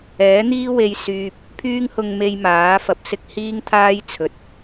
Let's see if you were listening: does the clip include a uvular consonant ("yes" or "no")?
no